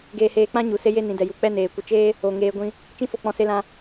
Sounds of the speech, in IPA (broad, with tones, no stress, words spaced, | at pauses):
ɡeː˧heː˧k͡pã˦ɲu˨ se˦je˦ nĩ˨dɛ˨ju˨ k͡pɛ˦ neː˨ kʷə˧ t͡ʃeː˦ | o˨ ŋeː˧ɡʷĩ˧ | t͡ʃĩ˦fo˦˨k͡pɔ̃˧ se˧lã˧